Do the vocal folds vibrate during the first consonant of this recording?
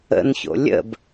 yes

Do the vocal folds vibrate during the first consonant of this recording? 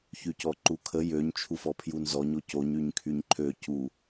no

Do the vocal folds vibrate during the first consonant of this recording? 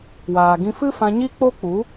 yes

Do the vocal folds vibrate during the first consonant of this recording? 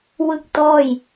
yes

